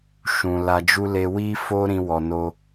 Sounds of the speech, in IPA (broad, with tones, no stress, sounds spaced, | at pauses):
ʃ ũ˨ l a˧ d͡ʒ u˦ l e˦ w i˦ f o˦ ɾ ĩ˦ w ɔ˧ n o˦